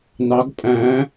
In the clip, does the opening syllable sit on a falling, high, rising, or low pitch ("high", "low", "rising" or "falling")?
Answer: rising